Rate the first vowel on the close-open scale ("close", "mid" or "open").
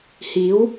close